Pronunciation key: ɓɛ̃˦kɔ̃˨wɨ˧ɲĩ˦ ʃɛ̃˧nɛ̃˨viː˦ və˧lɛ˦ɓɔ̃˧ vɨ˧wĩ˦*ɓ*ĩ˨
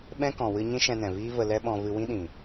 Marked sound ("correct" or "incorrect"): incorrect